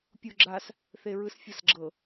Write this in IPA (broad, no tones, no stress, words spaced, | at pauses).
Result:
pʲuɡ͡ǁas | θeɹɯsfʲɤsɡ͡ǁɤ